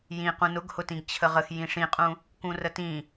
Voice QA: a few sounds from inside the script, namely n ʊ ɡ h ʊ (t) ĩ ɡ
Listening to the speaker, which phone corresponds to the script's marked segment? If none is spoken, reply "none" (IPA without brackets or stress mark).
t